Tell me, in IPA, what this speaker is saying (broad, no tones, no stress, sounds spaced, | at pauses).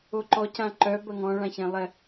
o ǃ ɔ c ã ǃ œ b ɐ ŋ ɔ̃ ɭ ã ç ɛ̃ lˠ ɛ